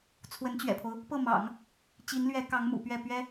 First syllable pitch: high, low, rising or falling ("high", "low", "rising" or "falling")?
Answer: rising